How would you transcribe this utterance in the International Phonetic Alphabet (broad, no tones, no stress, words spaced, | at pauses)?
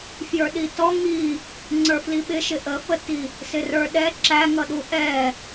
fjə˞ɗitɔ ŋi | ŋ͡ǀə˞fliɓɪ ʃɪʔəfəti | sɪrə˞ɗɛ ǁæŋʌ ɗuʔɛ